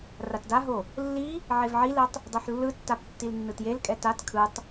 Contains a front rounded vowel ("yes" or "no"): no